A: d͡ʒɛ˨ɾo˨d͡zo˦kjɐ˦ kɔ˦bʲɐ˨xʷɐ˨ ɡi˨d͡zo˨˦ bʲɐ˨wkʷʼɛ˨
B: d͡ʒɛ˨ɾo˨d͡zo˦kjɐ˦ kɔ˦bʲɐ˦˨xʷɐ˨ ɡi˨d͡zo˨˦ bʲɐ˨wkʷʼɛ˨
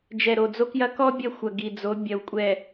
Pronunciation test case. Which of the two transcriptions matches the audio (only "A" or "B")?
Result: B